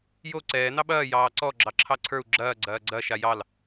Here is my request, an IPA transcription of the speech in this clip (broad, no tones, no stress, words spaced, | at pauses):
jo ǀɛː nɑɓɐː jɑːǀɔ ɡ͡ǁɑǁʰɑǀʰə˞u̯ ɡ͡ǁɐː ɡ͡ǀɐːɡ͡ǀɐ ʃajɑl